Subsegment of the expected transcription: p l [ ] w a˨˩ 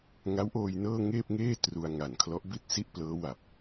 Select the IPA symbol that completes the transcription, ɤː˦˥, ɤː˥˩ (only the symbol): ɤː˦˥